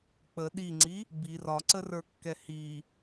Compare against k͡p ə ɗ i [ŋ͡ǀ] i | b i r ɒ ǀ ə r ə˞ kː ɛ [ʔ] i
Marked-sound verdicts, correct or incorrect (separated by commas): correct, incorrect